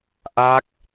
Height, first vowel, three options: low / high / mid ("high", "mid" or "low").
low